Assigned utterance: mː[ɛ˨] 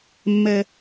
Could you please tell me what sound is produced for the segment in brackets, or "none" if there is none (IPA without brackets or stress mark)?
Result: ɛ˨